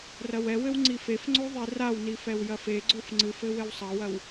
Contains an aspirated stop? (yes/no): no